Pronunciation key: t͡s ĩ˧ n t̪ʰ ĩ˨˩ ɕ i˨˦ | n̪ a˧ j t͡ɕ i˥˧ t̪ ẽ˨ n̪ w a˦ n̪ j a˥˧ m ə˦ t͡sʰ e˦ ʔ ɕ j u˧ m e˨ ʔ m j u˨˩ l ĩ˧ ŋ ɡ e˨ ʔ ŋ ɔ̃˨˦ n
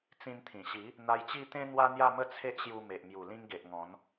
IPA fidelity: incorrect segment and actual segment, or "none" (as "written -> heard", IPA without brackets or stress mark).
ẽ˨ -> ẽ˦